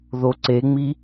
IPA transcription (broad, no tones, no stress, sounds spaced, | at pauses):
ð o ǀ e ŋ͡m i